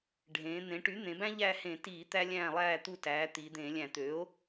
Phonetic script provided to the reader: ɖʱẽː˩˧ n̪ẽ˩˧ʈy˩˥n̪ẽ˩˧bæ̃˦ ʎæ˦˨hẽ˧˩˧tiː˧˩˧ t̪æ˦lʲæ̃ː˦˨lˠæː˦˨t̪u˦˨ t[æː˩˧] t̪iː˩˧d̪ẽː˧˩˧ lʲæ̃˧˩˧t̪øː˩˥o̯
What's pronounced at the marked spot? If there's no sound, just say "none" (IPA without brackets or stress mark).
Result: æː˩˧